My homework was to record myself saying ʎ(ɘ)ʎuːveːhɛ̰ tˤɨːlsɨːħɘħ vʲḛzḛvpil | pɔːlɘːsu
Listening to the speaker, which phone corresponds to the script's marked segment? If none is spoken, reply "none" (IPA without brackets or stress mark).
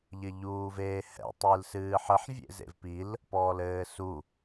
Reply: ɘ